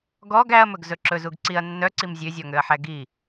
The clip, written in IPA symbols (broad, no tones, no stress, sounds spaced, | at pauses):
ɡ ɔ ɡ æ ɐ̯ m ɵ ɡ z ɵ ǁ ɵ z u ɡ ǀ i ɐ̯ nː œ ǀ i m zʲ ø zʲ ɔ ŋ ø ɐ̯ ħ æ ɡ i